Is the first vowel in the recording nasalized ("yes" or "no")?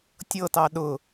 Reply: no